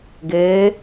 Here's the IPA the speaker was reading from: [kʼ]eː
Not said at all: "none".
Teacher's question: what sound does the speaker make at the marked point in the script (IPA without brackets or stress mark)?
ɡ